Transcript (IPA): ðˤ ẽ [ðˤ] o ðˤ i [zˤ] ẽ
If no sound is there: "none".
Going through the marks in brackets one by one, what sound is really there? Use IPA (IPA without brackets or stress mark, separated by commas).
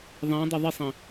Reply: dˤ, sˤ